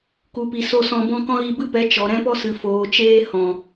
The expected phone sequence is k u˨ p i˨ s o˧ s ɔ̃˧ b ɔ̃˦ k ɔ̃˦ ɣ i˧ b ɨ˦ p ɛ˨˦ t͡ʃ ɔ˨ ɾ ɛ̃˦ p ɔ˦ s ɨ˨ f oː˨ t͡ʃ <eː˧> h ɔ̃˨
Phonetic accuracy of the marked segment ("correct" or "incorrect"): correct